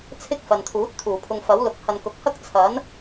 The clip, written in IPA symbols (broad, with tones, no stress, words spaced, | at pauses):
t͡sʰɪ˥k̚ fɐ˨n t̪ʰuː˨˥t̚t̪ʰuː˨˩pʰʊ˧ŋ fɐ˨˥wlʊ˨˥k̚ hɐ˨nkʊ˨˥k̚hɐ˥k̚ t͡sʰɐ˨˥n